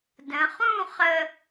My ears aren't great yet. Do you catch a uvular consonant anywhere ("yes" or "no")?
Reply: yes